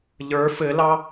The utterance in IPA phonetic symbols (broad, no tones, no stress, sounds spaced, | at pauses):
ʎ ə˞ f ɘ l ɑ